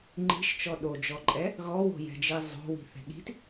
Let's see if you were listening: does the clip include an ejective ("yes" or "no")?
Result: yes